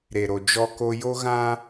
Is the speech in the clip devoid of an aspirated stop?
yes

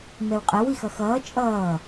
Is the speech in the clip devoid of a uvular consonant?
no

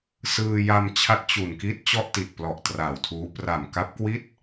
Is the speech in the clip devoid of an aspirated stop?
no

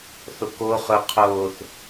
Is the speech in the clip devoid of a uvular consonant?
no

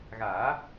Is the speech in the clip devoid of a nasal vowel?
yes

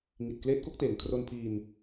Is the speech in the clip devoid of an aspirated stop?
no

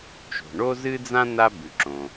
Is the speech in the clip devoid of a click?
no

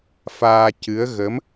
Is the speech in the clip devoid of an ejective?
yes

